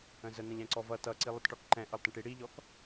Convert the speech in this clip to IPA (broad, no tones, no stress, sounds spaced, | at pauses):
ə̃ z ə n ə̃ ʎ ɛ̃ ǀ ɔ v ʌ t ʌ ǀ i lˠ ə t ʈ ɔ k ǃ ɛ̃ ʔ ʌ lˠ t ə̃ ʈ i ɽ i ʎ ɔ k